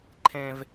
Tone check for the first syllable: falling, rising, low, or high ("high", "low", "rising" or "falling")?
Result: high